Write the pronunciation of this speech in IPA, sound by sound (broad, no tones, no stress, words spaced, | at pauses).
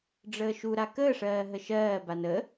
ɖ͡ʐəːʃuɾa kəːʂɜː ɦəʃɜːban ə